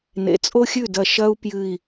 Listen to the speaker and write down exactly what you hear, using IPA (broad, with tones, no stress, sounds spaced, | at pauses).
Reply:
n ḛ˩˧ t͡sʼ o˥ xʲ ʉ˥˩ d ɐ˧˩ ʃ ɐ˥ u̯ p j ɨ˧˩ i̯